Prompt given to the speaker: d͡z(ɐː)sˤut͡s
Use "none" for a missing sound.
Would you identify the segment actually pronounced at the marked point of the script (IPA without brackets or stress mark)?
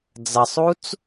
ɐ